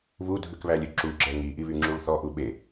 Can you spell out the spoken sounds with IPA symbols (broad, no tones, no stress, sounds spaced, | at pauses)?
β u dʱ ʉ k β æ lʲ ø ǁ u ɡ͡ǁ ɛ ŋ i ʔ i β y ŋ͡ǁ u ɭ θ ɔ ʔ u ɓ e